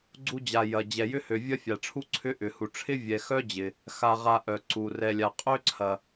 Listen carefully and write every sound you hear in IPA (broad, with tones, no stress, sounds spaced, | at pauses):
ɡ͡ǀ u˥ d͡ʑ a˧ j ɐ˧ d͡ʑ ɛ˧ j ʏ˥ h ø˧ vʲ ɐ˥ fʲ a˧ ʈ͡ʂʰ u˥ ǀʰ ʏ˥ ʔ ʏ˧ h u˧ ʈ͡ʂʰ ɪ˥ vʲ ɛ˧ x œ˥ d͡ʑ ɪ˧ | x a˧ ʁ a˧ ʔ œ˧ ǀ u˧ r ɛ˧ lʲ a˧ qʼ ø˥ ǀʰ ɐ˧